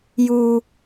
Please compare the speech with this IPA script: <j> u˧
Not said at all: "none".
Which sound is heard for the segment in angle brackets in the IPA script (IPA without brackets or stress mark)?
j